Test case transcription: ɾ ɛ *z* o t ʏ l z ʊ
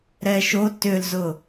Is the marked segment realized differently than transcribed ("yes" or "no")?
yes